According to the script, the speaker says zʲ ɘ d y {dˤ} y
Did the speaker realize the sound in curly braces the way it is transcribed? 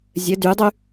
yes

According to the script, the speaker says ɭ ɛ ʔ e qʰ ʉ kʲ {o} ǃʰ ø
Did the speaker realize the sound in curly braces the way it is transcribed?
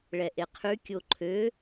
yes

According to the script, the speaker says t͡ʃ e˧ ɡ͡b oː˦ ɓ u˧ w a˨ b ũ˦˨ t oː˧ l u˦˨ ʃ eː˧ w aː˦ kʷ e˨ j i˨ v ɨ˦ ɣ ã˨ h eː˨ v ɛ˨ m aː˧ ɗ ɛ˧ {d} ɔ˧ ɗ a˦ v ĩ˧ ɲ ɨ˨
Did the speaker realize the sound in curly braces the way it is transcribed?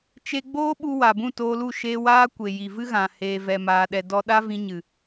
yes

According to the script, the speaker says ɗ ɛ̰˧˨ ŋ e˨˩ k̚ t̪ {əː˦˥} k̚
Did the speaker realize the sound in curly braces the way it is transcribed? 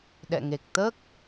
yes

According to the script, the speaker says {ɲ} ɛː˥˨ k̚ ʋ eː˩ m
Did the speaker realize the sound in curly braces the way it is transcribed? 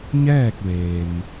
yes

